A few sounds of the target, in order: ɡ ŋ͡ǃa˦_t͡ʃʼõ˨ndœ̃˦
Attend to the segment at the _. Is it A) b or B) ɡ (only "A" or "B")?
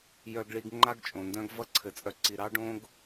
B